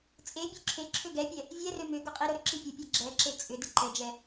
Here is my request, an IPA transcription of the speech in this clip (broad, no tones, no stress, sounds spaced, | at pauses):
t͡sʼ e bʲ ø ǁʰ e ǁʰ ø ɡ ɛ pʲ ɛ | vʲ ɛ r ø m ʏ ɡ ʊ qʼ i ɾ ʊ ɾ ʏ ǁ i pʲ ʊ pʲ ɛ ɡ͡ǁ ɛ ǁ e t͡sʼ ʏ d ɪ ǃ ɛ d͡ʒ ɛ